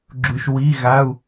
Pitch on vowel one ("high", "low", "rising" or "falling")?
low